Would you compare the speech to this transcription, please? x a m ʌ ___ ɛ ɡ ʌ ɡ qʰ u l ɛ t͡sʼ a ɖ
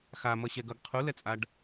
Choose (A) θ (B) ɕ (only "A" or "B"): B